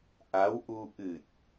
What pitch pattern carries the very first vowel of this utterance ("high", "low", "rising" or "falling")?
rising